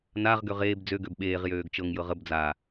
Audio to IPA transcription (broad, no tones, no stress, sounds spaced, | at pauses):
n a ʁ ɡ ø ʁ eː b d͡z ø ɡ ø b ɓ eː ʁ j øː ɡ t͡ʃ ɤ ŋ j ɤ ʁ ə b d͡z a